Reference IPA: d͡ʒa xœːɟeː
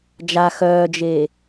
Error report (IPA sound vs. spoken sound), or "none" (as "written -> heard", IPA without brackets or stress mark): ɟ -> d͡ʒ